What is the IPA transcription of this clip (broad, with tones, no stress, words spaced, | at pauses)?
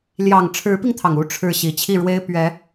ljɑ˨˩ŋ ʈ͡ʂʰɻ̩˧˥pi˧ŋt̪ʰɑ˩ŋ u˥ ʈ͡ʂʰɻ̩˥˩ɕi˨˩ t͡ɕʰi˥˩ɻwe˥ɪ̯ pɥɛ˧˥